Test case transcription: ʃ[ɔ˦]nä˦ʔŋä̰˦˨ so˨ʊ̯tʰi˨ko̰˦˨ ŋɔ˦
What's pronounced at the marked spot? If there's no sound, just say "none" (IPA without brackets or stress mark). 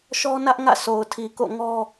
ɔ˦